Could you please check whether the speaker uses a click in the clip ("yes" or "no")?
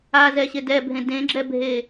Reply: yes